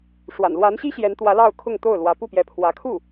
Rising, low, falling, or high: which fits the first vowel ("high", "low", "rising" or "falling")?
low